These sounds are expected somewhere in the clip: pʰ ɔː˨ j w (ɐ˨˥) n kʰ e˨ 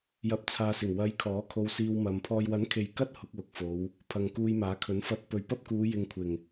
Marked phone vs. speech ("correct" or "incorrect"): correct